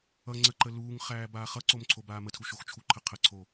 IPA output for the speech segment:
ʌ ŋ͡ǀəǃə luːŋχæː baːχʌǀom ǀʰobaːmətʰu ʃoxt͡ʃʰuǃʰə qʰəǀʰo

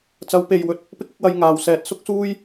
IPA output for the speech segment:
t͡sɐ˨˧wpe˨j wɵ˧t̚ | pɪ˥k̚ɪ˨˥k̚wɐ˧j ŋaː˨wsɛː˧t̚ sʊ˥k̚suː˥j

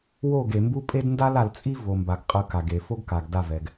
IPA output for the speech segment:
wo˦˨ɡe˨mbu˦ pʼe˦dnda˦l a˨lt͡sʼi˦ vo˨mba˨ɡ qʼɯ˨˦ka˨ɡe˨ fo˦ɡka˨ɡ da˦˨vɛ˨ɡ

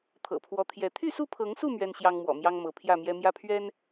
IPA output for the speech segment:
t̪ʰɤ̰˨˩pʰwɔ˨˦t̪ʰjɛ˨˦ t̪ʰy˥˨su˥˨pʰɤ˨˦ŋsu˥˨ mɥɛ˦nɕjɑ˦ŋmwɔ̰˨˩ mjɑ˦ŋmɤ˨˦pʰjä˥˨mjɛ˦ mjä˦pʰɥɛ˦n

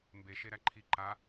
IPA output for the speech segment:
mbeʃe ɾæǃʰi ǃa

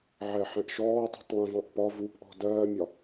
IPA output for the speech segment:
ʕɛħɛ̃ʔʃɔː tˤi̤tˤlˠɛ̃vɑ̃ʔpɒ vupʔɔ̤ dɜːmʲɒ

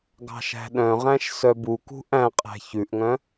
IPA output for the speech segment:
ɡɑ̤ʃæ̤ɗœ̃ʁæ̃ʃ sœbukṳ ʔæ̃qʼæ̤ çʉʔŋœ̃

